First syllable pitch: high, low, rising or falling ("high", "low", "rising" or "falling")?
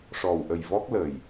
low